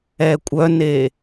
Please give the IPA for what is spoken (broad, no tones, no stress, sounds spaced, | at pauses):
ɛ kʷʼ œ n e